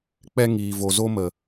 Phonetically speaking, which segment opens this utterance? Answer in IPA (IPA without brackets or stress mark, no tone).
k͡p